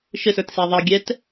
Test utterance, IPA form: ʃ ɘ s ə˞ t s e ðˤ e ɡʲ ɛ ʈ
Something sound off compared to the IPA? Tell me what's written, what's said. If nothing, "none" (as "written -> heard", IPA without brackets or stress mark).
ʈ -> t